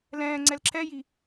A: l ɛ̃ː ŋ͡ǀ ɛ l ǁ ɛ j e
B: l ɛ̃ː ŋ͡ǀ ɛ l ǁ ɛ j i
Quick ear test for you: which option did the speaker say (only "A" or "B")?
B